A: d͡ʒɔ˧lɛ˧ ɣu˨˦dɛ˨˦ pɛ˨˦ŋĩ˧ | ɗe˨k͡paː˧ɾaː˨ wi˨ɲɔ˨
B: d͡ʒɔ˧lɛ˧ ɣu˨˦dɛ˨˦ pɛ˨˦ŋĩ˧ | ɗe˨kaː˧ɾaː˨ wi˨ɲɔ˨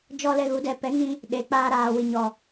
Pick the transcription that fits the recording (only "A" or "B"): A